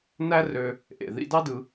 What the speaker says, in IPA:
næ˥rø˧ | ʔḛ˩ ðḭ˧dɑ˥dɯ˧

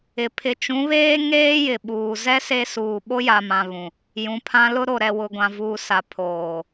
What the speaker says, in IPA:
ɪ˨ pʰɪ˨t͡ʃũ˨˦βeː˦ ŋeː˦ jɪ˨ɓuː˨ zɛ˦ se˦ suː˨ ɓo˦ja˨mã˨ βũ˨ | jũ˨pʰã˦ lʊ˦ɾo˨ ɾɛ˨wʊ˨ ɡʷã˨vuː˨sa˨ pʰoː˨

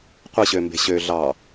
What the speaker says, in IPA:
qʷɯɕømbe̤ ɕø ɮɑ

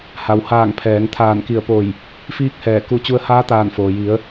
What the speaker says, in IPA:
ha˩whaː˧˩ŋ pʰɛː˩˧ŋ t̪ʰaː˧˩nki˧˩ə̯po˧˩j | fiː˧˥k̚hɛː˧˩ ku˧ t͡ɕu˧ə̯haː˧˥ t̪aː˧˩nfoː˩ji˩˧ə̯

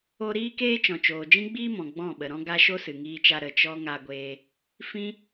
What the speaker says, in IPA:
o˧ ɾiː˦keː˦t͡ʃɔ̃˨t͡ʃoː˨ d͡ʒĩ˦ɡ͡biː˦ mɔ̃˨ ɡ͡bɔ̃˦˨ɓə˨ɾɔ̃˦ ɡa˦ ʃo˦sɨ˨ŋiː˧t͡ʃa˧ ɾə˨ t͡ʃɔ˦ŋa˧ɡʷeː˧ | fĩ˦

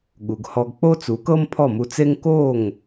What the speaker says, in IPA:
ɠu˩ɡhɔ˧ɡ k͡po˥t͡su˩˥kɤ˥m pʰɔ˥˩mu˧t͡se˥ŋ ko˥˩ŋ

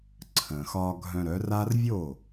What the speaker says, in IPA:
ǀʰə̃˩xɒ˧ ɡʱœ̃˧ɾœ˩˥ra˥r vʲo˥˩

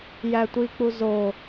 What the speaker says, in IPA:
jætʷik͡pu zo

